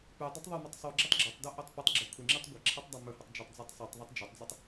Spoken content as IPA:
p ʉ dˤ ɐ tˤ ðˤ o m o tˤ sˤ u ɡ͡ǁ o tˤ ɡ͡ǁ ɵ tˤ d o ʔ ɵ tˤ p ʉ tˤ ɡ͡ǁ ɵ kʷʰ ɨ ŋ͡ǁ ɨ tˤ ɡʷ ɐ ǁʰ ɨ tˤ dˤ a m ɵ h o tˤ d͡ʒ e tˤ d͡z i tˤ sˤ ʉ tˤ ðˤ ɐ tˤ d͡ʒ ɐ tˤ d͡z ɨ tˤ

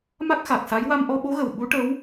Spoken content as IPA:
m a˦˥ k̚ x a˨˩ k̚ s a˧˥ j w a˧ m ʔ ɔ˧ ɓ o˧˥ ɣ ə˨˩ w ɓ u˧˥ ʈ ə˧˥ w

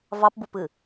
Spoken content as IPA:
v ɑ p b u p ɨ

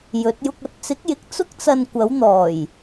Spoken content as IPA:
j ɵ˨˥ t̚ j ʊ˧ k̚ ɐ˧ t̚ t͡s ɪ˨˥ k̚ j ɪ˨ k̚ t͡s ʊ˥ k̚ t͡s ɐ˧ n kʷ ɐ˨˥ w n̪ ɔː˨˩ j

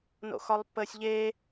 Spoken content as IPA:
n o̰ x ɒ lˠ pː əː sʲ ʎ eː

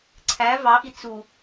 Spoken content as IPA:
ǀʰ æ v ɑ ʔ i t͡s u

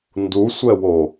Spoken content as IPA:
n d u sʷ ɛ w o

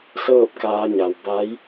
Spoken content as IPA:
s ɤː˥˨ p̚ k aː˧ ɲ a˩ w b a˧˥ j

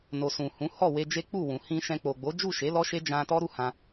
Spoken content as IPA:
n o˨ s ũ˨ h ũ˨˦ h ɔ˦˨ w e˧ d͡ʒ e˦ k͡p u˦˨ w ũ˨ h ĩ˧ ʃ ɛ̃˧ k͡p o˨ ɡ͡b o˨˦ d͡ʒ u˦˨ ʃ e˨˦ l ɔ˦ ʃ e˦ d͡ʒ ã˧ t ɔ˦ ɾ u˦ h ã˧

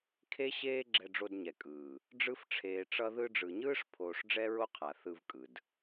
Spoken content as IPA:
kʰ e˦ ɕ eː˦ ɡ͡ǁ ɛ˧ ɖ͡ʐ o˧ d ɲ ɛ˨ kʼ ɯː˨ | ɖ͡ʐ ɯ˦ f ʈ͡ʂʰ eː˧ ʈ͡ʂ ʌ˦ ð ɯ˧ ɖ͡ʐ ɯ˨ ɲ ɯː˦ ʂ pʰ oː˧ ʂ ɖ͡ʐ ɛ˦ ɹ o˦ qʰ a˨ θ ɯ˧ v kʼ ɯ˨ d

